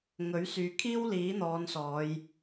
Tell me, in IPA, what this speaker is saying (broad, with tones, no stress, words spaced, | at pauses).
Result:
ŋɵ˨˥ɥsyː˨kʰiː˥w liː˨˥n̪ɔː˨˧nsɔː˨˧j